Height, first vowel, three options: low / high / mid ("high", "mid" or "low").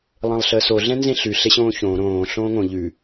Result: mid